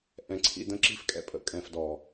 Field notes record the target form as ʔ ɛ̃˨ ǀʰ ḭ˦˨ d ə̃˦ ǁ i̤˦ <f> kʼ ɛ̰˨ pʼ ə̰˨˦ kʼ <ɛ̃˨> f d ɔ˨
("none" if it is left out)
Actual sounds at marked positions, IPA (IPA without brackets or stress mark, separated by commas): f, ɛ̃˨